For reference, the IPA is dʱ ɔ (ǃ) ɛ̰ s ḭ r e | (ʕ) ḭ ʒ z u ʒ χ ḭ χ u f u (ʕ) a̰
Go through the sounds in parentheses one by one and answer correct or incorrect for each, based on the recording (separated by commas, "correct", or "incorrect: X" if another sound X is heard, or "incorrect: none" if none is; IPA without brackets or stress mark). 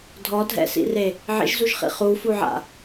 incorrect: dʱ, correct, correct